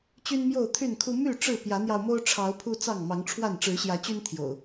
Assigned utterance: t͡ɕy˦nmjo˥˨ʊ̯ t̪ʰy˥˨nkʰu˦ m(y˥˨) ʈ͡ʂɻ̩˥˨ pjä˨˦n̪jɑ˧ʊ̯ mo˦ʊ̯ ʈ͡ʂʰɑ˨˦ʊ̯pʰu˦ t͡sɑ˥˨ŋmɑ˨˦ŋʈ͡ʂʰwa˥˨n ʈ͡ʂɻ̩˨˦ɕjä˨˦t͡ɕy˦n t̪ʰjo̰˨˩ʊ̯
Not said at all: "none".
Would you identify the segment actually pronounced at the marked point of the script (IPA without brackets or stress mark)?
y˥˨